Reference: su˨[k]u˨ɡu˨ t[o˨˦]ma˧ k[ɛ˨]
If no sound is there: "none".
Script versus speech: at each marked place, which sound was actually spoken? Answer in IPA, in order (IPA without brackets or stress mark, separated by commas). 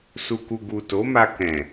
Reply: k, o˨˦, ɛ̃˨